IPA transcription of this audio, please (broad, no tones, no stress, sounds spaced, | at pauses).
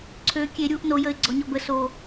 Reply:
ǀʰ ø kʲ e ɾʲ u ʔ n o j ə ɪ̯ ɡ͡ǀ ɔ ɲ ɔ b ə s o